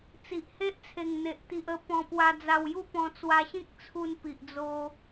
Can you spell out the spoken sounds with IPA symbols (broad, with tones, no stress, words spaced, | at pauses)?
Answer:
t͡si˨ʔhe˦ʔt͡sʰe˨˩ŋn̪e˨ʔ t̪i˨ʔə˧ pɔ̃˧pwa˧d͡za˧wju˥˧ pɔ̃˧t͡swa˧ɕĩ˦k̚t͡sʰu˧n pi˨ʔd͡zo˧